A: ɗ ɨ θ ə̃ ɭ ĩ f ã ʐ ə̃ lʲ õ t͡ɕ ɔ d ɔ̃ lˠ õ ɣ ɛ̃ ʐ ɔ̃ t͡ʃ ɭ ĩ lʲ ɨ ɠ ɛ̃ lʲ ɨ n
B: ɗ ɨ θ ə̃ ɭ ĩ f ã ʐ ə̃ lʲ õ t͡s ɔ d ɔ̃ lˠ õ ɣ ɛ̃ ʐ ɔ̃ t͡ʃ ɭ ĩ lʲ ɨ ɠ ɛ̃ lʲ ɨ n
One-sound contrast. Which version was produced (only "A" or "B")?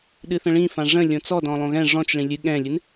B